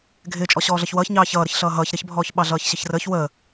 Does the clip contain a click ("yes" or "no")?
no